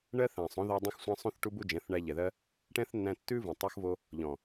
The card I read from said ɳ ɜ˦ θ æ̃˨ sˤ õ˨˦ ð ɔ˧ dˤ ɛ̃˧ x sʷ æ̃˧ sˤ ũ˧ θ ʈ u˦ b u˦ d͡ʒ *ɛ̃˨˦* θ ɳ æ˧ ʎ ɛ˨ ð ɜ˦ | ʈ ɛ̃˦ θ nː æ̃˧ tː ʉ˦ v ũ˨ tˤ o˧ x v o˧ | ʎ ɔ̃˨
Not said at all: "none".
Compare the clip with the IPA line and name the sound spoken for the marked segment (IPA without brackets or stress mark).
ɛ̃˨˦